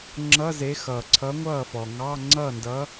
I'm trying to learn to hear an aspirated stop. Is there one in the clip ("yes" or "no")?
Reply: yes